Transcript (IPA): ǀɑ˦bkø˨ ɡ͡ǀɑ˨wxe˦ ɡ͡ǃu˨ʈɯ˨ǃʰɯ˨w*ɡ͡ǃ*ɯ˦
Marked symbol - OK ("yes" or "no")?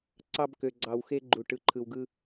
no